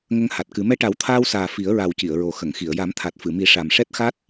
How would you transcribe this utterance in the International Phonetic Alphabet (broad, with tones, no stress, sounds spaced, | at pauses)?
ŋ ə˧ ŋ h a˨˩ t̚ k ɨ˨˩˦ m ɛ˧ ʈ a˨˩˦ w t̪ʰ aː˧ w s aː˨˩ f i˨˩˦ ə̯ ɹ a˨˩ w c i˨˩˨ ə̯ ɹ o˨˩ x ə˨˩˨ ŋ x i˨˩˨ ə̯ j a˨˩˦ m t̪ʰ a˨˩ t̚ f ɨ˨˩˨ m i˨˩˦ ʂ a˨˩ m ʂ ɛ˦˥ t̚ x a˦˥ t̚